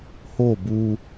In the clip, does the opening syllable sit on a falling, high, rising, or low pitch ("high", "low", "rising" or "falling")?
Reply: falling